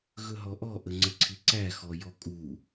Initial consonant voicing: voiced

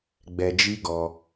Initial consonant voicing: voiced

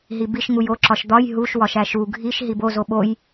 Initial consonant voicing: voiced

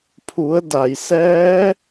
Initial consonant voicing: voiceless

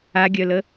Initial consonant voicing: voiced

